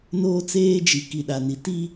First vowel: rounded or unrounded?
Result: rounded